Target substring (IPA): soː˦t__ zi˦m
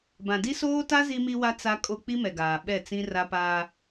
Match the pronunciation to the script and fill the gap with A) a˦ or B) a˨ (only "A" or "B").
A